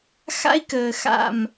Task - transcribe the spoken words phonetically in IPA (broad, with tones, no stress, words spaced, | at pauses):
xa̰˦i̯kəː˨xa̰˦˨m